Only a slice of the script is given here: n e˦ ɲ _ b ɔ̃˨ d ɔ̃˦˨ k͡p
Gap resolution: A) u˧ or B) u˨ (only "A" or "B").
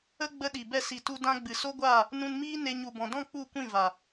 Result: B